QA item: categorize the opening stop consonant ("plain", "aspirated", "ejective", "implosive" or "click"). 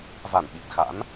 implosive